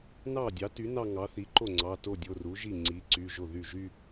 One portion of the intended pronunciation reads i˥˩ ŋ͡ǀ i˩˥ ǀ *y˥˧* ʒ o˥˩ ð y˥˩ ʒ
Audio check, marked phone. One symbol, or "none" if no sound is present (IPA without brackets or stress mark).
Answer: y˩˧˩